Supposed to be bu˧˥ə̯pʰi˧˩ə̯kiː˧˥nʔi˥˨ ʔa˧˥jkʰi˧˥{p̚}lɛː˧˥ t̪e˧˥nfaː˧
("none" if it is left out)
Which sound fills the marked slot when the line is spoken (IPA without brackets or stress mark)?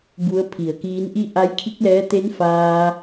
k̚